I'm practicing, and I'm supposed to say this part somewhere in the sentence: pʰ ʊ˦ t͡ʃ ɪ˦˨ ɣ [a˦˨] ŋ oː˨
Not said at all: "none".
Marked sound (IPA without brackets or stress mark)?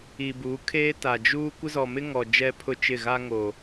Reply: a˦